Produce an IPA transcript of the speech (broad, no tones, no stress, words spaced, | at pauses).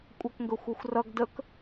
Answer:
kʷʼakŋɡɵxʷaxʷrʌɡ dək